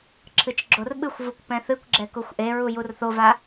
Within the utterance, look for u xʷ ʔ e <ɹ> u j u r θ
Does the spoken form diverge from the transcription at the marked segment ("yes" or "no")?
no